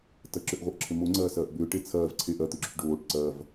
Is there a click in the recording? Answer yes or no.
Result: yes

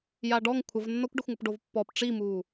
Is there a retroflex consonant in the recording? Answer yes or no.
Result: yes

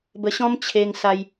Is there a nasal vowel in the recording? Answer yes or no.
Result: yes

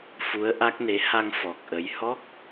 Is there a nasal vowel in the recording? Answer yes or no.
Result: no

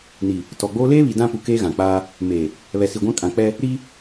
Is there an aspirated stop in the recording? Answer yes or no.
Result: no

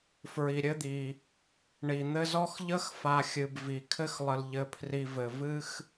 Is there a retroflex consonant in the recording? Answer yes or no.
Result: yes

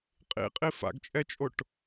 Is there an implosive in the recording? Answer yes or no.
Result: no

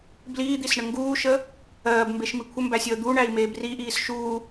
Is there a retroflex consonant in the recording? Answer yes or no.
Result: yes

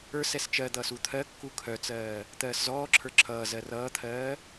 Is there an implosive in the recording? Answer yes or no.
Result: no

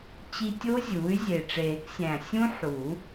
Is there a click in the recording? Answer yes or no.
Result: no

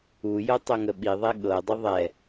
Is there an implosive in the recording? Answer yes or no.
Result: yes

